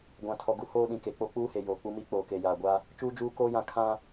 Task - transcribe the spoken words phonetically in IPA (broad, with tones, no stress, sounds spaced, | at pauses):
ɡʷ ã˨ tʰ ɔ˨ ɡ u˦ h oː˦ ɗ ĩ˨ k e˨ k͡p o˦ k͡p uː˦ h e˨ j oː˨ k͡p u˦ m i˦ k͡p oː˨ k e˨ j aː˨ ɡʷ a˦ | t͡ʃ uː˦ d͡ʒ uː˦ k oː˦ j ã˦˨ kʰ ã˦